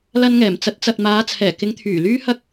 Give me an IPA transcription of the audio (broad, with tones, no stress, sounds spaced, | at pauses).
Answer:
l ɐ˧ n ŋ ɛː˨˩ m t͡s ɐ˨˥ t̚ t͡s ɐ˨ t̚ m aː˨˧ t͡sʰ ɛː˨˩ k ɪ˨˧ ŋ t̪ʰ yː˨˩ l yː˥ h ɐ˥ k̚